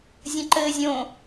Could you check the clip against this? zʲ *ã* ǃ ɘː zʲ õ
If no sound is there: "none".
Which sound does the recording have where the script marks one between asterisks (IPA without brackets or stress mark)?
ɐ̃